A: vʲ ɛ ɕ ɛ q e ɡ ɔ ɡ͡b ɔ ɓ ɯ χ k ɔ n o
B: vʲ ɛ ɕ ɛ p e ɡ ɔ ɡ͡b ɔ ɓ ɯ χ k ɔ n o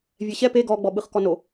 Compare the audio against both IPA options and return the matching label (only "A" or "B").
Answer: B